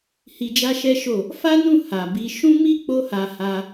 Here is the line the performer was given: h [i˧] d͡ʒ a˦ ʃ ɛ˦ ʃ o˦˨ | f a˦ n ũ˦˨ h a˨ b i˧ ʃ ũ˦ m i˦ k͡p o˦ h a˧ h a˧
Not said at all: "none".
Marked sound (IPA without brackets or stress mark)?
i˧